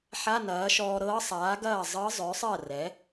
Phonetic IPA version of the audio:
ħ a˧˥˧ n ɐː˩˥ ʃ ɔː˧ ɾ ɤː˧˥ sˤ aː˩˥ ɡ ɐː˥˩ zˤ ɤ˧˥ zˤ œ˩˥ sˤ ɜ˥˩ r ɛ˩˥

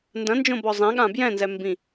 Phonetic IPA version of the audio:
n d ɐ̃ n d͡ʒ õ b ɔ zˤ ɛ̃ ɠ ã b j ɛ̃ n z ɛ m b ĩ

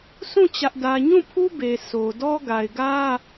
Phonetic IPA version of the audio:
sʰ ũ˦˨ t͡ɕ ä˦ ʔ d ä˦ ɲ ũ˦˨ pʰ u˦ b e˨ sʰ o˨ d ɔ˦ ɡ a˨ ɪ̯ ɡ ä˦

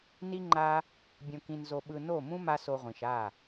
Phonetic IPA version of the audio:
n i˦ ŋ͡ǃ a˦ | bʲ õ˧ k ĩ˧ n z o˧ ɓ ɯ˧ n o˦˨ m ũ˦ m a˦ s o˧ ʁʷ ĩ˨ ʃ a˦˨

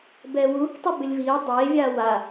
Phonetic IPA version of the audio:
b ɛː w uː k tˤ e b ɪ lʲ v iː dˤ eː vʲ aː w a

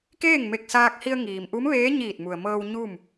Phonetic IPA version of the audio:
k eː˥˨ ŋ m e˧˩ k̚ s aː˧ k̚ h i˧ ə̯ ŋ iː˩ m ʔ u˧˥ m ʋ eː˧˥ ɲ iː˧˩ t̚ m u˩ ə̯ m ɤː˧ w ɲ u˥˨ m

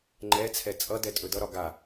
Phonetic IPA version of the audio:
ŋ͡ǃ ɛ t͡sʰ ɛ t͡sʼ ʌ d ɛ tʼ ɵ d ʌ ɾ ɒ ɡ a

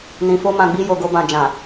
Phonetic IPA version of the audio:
n ĩ˨ f o˧ m ã˨ ɡ͡b i˧ j o˨ ɡ o˧ b ã˨ d͡ʒ ã˨

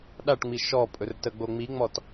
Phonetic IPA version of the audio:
ɗ a ʈ ŋ͡m i ʃ ɔ pʼ ɵ r t ə ɡ͡b o ŋ͡m i ŋ͡m ɔ t

